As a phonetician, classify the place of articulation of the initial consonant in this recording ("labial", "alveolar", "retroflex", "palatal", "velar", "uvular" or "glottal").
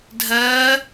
alveolar